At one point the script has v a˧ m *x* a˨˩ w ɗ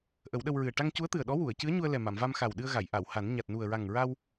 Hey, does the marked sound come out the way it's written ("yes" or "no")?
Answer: yes